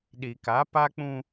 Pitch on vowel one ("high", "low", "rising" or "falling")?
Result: low